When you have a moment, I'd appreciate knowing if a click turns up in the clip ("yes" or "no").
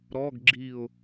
yes